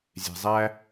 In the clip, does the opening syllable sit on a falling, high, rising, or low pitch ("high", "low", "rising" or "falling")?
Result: low